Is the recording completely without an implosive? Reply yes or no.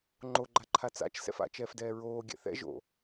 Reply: yes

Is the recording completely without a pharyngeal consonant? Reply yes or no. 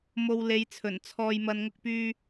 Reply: yes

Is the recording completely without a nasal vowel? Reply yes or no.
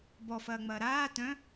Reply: no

